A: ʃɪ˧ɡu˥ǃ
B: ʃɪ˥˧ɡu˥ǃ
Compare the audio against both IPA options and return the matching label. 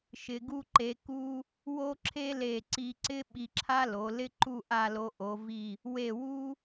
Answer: A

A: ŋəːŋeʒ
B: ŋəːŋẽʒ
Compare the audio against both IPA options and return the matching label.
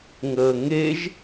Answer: A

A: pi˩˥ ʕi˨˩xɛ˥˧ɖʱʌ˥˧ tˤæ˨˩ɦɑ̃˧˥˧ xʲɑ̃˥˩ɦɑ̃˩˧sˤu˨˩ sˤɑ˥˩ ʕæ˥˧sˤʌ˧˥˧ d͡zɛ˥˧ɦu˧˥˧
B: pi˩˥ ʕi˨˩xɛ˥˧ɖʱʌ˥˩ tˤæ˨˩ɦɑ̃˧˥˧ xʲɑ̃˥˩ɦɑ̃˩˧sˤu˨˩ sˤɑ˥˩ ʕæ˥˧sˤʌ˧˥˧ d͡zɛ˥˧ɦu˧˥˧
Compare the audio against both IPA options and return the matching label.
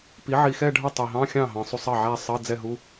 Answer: B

